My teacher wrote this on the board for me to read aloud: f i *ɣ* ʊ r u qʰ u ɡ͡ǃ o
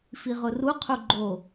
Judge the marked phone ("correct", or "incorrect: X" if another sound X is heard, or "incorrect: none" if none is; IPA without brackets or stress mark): incorrect: ʁ